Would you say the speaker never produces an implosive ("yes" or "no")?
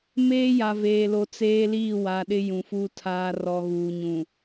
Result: no